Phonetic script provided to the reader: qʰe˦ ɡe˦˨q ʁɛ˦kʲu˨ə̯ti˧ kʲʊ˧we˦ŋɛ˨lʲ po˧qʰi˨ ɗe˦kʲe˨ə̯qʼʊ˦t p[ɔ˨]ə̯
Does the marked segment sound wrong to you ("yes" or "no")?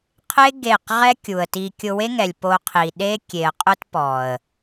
no